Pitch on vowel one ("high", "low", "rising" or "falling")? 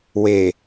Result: low